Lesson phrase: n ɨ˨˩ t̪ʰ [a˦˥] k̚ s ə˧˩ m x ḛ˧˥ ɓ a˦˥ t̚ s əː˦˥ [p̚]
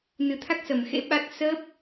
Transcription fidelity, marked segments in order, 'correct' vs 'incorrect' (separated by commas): correct, correct